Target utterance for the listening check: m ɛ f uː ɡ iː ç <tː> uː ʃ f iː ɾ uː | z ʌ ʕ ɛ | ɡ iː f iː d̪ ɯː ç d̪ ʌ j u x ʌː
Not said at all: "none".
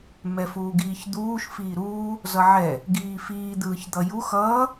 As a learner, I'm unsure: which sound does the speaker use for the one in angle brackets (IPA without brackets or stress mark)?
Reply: d̪